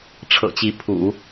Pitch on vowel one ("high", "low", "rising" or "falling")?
low